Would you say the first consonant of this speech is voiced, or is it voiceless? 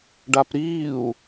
voiced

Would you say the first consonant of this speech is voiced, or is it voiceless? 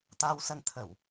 voiceless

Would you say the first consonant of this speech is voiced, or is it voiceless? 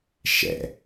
voiceless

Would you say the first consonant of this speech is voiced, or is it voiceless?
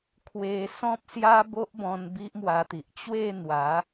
voiceless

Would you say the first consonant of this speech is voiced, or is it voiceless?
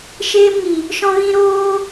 voiceless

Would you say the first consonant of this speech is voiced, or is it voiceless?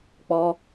voiceless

